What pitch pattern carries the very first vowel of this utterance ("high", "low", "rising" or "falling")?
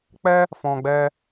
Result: high